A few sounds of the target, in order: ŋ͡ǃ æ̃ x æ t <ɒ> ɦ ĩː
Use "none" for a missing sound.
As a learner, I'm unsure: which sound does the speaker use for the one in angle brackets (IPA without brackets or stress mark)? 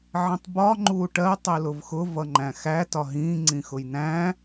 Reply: ɒ